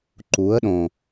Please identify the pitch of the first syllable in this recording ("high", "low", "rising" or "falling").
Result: rising